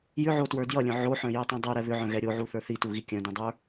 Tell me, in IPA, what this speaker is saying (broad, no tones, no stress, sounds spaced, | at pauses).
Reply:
j ʏ ʕ o t w ə˞ d j ʌ lʲ œ̃ ʕ o ħ œ̃ j œ tˤ ũ dˤ o ɾ ɛ β ʏ ʕ œ̃ ɣ ɛ ɾʲ o ʕ u θ ə˞ θ i t u ɣ i kʲ œ̃ d ũ dˤ ə˞